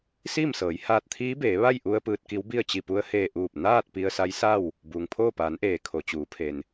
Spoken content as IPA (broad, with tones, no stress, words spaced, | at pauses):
siː˥˨msɤː˩˧j haː˧t̚ t̪ʰiː˧˥beː˩˧ ʋa˥˨jʔu˧ə̯ pɯː˧t̚ki˧˥wbi˥˨ə̯ t͡ɕi˧˩pu˧ə̯heː˧˩ ʔuː˧˩p̚ naː˥˨t̚ pi˧ə̯sa˧˥j sa˥˨w | buː˩ŋpʰoː˥˨ paː˩˧nʔeː˩ kʰo˩t͡ɕuː˩˧pʰe˩n